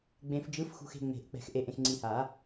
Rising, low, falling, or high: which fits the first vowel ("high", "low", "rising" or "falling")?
low